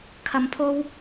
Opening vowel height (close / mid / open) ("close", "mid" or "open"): open